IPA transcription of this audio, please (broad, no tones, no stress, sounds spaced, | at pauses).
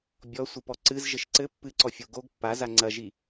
bʲ ɔ sʷ ɨ p ɔ ǀ ɨ z ʒ ɘ ʃ ǀ ɘ pː ɨ ǀ ɔ fʲ o ɡ o ɡ pː a z a ŋ͡ǀ ɐ ʒ i